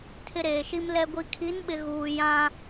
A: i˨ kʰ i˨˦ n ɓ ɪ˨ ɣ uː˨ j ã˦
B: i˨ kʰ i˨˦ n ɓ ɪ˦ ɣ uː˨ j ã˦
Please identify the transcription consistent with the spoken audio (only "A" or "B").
A